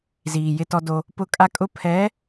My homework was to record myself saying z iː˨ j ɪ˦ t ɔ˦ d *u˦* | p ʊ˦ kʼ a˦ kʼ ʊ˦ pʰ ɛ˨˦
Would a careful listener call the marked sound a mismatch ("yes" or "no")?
yes